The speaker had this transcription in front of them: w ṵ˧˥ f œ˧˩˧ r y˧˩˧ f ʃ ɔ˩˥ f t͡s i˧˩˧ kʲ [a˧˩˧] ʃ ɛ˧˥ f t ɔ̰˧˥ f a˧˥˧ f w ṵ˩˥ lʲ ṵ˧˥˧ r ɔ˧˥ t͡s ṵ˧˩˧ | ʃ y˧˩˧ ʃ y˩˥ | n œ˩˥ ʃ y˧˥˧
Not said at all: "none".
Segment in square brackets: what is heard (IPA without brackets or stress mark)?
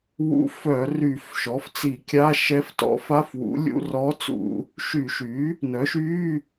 a˧˥˧